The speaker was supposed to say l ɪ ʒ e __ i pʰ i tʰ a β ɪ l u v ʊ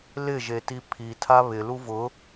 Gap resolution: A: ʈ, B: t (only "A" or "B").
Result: B